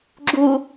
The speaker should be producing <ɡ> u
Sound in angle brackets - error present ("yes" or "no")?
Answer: yes